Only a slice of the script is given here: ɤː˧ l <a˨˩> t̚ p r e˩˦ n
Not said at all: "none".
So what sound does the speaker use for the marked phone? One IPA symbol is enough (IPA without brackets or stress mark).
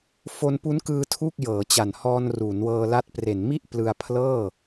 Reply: a˦˥